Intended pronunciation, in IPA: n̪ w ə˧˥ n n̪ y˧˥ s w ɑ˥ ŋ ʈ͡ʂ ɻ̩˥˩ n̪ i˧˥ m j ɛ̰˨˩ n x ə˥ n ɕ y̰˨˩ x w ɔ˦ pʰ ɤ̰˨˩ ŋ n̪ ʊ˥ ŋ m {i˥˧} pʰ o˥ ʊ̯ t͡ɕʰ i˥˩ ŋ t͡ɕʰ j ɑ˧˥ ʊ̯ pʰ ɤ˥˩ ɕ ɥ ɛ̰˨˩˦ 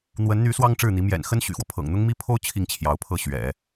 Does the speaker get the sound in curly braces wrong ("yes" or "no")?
yes